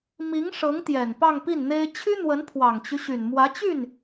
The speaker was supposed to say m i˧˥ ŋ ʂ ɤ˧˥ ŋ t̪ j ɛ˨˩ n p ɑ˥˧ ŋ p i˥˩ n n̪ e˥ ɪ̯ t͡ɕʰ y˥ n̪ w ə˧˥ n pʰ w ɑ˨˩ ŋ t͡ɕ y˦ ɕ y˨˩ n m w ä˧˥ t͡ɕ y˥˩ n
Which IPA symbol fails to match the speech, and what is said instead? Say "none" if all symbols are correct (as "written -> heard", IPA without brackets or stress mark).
none